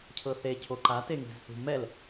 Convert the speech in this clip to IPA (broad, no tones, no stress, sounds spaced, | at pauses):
cʰ ɤ θ e cʰ o ǃ a t e ŋ i̤ z θ ṳ m ɛ l